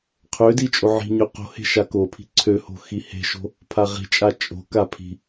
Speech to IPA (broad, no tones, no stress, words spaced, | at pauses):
qʰødi t͡ʃʼoʕi̤ɲø qo̤he̤ ʃakopʰi̤ ǀʰøho̤ xihe̤ʃo̤ | pʰaʁi̤t͡ʃʼa t͡ʃʼo̤ka pʰi̤